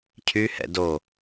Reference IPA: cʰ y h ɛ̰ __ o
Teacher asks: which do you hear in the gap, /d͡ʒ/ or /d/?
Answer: d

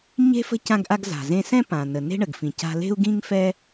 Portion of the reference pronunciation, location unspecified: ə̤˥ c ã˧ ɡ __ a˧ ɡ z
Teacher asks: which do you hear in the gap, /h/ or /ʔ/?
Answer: ʔ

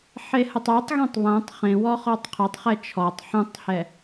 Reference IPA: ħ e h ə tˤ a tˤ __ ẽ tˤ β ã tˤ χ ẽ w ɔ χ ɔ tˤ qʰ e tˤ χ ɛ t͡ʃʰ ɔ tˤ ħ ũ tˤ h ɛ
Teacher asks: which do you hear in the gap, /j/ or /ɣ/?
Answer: ɣ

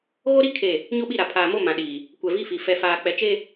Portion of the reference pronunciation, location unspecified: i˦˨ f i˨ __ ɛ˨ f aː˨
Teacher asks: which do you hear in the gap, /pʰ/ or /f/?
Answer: f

